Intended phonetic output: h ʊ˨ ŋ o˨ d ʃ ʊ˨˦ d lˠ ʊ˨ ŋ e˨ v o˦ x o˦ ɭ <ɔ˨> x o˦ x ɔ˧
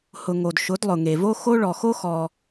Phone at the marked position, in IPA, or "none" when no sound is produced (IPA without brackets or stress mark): ɔ˨